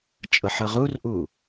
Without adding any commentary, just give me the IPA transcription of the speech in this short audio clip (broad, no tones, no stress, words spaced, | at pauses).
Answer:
t͡ʃʼɤħɤʁurʔu